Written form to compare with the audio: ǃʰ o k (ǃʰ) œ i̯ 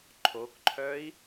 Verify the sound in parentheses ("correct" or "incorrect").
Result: correct